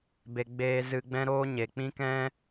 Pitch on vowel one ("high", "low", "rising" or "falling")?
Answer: low